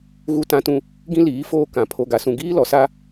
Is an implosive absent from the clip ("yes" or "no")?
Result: yes